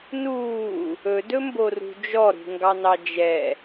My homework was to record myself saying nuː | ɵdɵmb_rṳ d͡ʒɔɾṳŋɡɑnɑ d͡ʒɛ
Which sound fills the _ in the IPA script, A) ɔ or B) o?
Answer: B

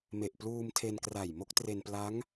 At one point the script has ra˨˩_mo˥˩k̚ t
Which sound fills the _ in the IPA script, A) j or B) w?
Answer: A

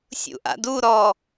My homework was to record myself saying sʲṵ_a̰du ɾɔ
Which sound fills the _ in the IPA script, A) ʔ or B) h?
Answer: A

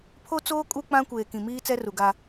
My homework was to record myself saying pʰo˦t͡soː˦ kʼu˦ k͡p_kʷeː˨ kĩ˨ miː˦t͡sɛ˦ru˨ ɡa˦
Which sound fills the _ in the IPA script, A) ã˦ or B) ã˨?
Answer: A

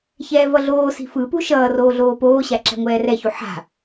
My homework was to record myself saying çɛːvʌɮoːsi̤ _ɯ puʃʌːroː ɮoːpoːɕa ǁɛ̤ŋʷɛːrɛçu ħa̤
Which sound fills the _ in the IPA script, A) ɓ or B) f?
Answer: B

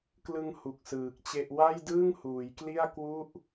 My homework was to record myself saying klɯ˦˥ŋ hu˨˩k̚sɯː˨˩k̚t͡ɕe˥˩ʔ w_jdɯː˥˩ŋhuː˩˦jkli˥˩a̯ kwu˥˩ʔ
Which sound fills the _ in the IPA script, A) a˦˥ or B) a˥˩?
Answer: B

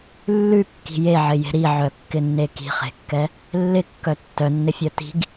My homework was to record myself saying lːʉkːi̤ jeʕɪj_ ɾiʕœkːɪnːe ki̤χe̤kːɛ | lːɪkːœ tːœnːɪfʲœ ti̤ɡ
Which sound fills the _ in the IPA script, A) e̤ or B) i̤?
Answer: A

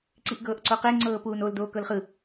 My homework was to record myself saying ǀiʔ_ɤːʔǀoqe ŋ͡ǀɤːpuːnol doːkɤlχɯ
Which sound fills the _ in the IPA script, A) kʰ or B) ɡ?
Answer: B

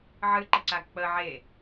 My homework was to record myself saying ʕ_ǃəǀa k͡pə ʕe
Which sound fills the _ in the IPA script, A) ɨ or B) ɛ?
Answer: A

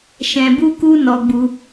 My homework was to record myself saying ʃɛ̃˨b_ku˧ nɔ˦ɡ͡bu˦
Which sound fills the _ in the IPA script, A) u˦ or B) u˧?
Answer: B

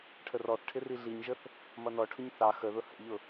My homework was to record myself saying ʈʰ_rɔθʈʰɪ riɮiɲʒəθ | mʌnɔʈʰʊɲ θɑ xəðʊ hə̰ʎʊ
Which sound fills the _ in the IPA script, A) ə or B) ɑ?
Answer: A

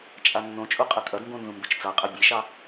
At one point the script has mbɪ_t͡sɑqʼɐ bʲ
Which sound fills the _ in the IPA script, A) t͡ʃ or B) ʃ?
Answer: A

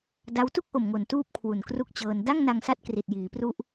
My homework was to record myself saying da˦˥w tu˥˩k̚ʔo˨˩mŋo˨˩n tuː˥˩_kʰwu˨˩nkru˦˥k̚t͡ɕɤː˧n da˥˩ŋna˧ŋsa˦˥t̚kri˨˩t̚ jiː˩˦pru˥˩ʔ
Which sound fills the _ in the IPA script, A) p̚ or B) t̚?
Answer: A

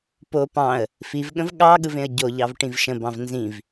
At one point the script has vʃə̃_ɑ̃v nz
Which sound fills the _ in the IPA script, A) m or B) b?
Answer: B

